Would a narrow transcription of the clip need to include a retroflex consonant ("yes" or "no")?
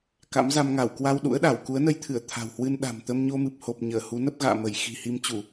no